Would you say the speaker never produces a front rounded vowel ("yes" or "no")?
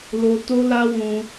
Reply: yes